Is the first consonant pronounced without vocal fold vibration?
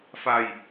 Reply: yes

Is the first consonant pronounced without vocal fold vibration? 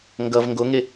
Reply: no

